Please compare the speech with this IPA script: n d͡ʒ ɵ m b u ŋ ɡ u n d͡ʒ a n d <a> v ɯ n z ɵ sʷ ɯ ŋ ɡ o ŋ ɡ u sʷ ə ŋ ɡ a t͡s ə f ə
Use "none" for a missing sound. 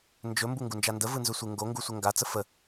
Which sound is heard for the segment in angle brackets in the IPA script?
ə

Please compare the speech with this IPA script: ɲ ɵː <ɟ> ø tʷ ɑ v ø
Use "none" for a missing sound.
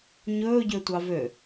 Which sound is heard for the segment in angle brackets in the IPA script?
ɟ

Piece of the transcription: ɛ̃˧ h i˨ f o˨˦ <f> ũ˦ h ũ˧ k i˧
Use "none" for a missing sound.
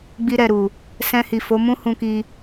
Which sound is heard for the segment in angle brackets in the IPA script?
m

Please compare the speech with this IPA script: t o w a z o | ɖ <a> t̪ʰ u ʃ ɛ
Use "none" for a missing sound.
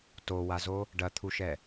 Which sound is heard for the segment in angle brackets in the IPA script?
ɐ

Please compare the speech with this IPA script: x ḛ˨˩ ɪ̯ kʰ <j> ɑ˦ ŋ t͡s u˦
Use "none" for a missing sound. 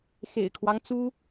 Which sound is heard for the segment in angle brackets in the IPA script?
w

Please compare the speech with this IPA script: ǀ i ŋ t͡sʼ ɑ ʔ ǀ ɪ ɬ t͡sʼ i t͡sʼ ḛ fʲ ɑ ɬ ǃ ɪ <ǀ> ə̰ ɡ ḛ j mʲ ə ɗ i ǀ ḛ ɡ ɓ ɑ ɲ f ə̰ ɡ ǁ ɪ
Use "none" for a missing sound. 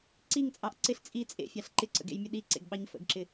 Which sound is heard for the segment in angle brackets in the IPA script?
ǀ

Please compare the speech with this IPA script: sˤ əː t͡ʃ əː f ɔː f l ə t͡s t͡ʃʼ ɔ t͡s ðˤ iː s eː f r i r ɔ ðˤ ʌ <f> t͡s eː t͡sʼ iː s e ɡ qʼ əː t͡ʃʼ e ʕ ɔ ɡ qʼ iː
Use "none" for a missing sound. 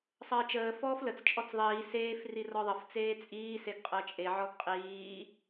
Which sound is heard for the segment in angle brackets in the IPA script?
f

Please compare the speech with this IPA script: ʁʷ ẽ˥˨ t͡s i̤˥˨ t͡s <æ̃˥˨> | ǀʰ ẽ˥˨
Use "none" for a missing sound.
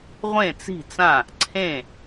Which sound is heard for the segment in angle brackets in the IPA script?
ã˥˨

